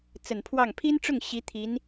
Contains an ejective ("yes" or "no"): no